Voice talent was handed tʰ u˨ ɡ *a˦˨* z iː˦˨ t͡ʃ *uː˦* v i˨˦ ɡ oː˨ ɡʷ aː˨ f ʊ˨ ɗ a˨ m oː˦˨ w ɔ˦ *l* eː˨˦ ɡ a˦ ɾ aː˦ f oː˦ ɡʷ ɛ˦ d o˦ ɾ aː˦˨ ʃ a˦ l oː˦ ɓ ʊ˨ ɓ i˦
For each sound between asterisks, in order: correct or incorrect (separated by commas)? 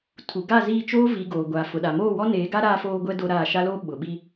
correct, incorrect, incorrect